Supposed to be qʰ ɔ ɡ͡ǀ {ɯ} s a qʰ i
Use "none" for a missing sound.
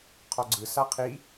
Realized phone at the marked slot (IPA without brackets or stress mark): ɯ